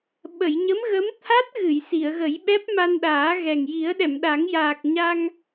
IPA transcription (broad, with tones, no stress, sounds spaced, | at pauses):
ɓ ə˨˩˨ j ɲ ə˧˥ m ɣ ə˧˥ m t̪ʰ a˦˥ t̚ ɣ ɨ˨˩˨ j s i˨˩˨ ə̯ ɣ ə˨˩˦ j ɓ ɛ˦˥ p̚ m a˧ n ɗ aː˨˩˦ ɣ ɛ˨˩ ŋ j i˨˩˦ ə̯ ɗ ɛ˨˩˨ m ɗ a˨˩˦ ŋ j aː˨˩ k̚ ɲ a˧ ŋ